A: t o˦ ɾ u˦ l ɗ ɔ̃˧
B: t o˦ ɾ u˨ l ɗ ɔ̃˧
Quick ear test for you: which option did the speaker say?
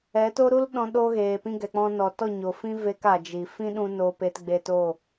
A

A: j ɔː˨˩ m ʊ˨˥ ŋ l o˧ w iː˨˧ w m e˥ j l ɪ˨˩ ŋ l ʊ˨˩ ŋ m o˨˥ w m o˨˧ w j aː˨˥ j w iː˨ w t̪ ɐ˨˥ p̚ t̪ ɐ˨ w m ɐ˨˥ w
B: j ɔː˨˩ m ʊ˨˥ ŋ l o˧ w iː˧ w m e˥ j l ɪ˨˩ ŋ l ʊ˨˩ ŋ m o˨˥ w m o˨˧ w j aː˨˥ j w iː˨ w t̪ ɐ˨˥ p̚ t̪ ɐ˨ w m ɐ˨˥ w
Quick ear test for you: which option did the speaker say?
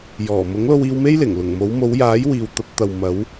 B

